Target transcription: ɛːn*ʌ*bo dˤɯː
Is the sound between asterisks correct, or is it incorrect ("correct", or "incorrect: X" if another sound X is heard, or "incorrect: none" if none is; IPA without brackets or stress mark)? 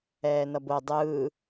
correct